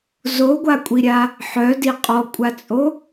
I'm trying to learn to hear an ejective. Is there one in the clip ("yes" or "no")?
yes